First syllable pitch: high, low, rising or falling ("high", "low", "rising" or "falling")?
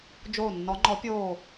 falling